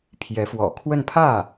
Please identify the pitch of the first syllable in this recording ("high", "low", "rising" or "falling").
rising